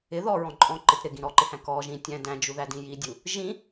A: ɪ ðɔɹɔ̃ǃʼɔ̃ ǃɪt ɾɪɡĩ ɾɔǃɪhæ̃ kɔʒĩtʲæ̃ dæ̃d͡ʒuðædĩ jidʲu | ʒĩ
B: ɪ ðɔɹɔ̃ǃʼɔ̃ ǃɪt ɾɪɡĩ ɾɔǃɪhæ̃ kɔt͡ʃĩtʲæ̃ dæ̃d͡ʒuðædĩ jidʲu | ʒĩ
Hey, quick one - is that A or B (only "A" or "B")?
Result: A